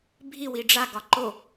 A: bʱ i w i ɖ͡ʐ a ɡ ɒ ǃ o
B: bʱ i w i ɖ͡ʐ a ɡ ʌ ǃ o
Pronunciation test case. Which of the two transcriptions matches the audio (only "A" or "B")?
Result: A